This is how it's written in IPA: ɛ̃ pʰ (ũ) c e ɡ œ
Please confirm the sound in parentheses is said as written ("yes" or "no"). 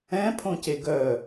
no